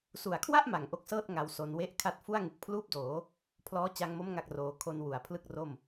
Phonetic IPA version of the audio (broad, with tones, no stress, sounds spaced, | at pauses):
s u˨˩ a̯ kʰ w a˥˩ ʔ m a˨˩ ŋ ʔ o˦˥ k̚ s ɤː˥˩ t̚ ŋ a˧ w s o˧ n w e˥˩ ʔ kʰ a˦˥ t̚ f u˥˩ a̯ ŋ ɯ˨˩ k̚ pʰ l uː˥˩ p̚ d oː˩˦ | pʰ l ɔː˦˥ t͡ɕ a˧ ŋ m o˦˥ m ŋ a˥˩ k̚ r oː˧ kʰ o˧ n w u˩˦ a̯ pʰ l ɯ˥˩ k̚ r o˥˩ m